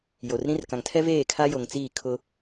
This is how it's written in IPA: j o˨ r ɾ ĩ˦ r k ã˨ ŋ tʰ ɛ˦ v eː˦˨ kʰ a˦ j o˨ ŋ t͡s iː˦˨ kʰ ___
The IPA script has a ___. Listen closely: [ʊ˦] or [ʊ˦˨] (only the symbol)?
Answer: ʊ˦